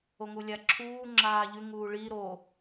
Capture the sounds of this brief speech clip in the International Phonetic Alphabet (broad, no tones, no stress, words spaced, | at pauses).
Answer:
oŋulʲaǁʰuː ŋ͡ǁaːʎʉ ŋuːɭi ɾo